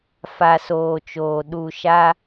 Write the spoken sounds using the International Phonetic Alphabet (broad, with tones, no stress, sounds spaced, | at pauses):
f a˨ s oː˨ t͡ʃ oː˨ ɗ u˨ ʃ a˦